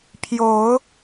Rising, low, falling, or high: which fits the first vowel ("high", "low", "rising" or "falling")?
rising